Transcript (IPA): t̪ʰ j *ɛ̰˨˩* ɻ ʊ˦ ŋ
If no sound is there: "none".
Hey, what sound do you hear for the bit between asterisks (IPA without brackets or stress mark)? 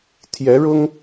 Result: ɛ˨˦